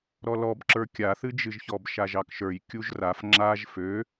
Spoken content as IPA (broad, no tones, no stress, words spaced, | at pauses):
ɾɔlɔbǁə˞ kʲaθɨd͡ʒɨʒçɔb ʃaʒɑkʃə˞j kʲuʒraf ŋ͡ǁaʒ fø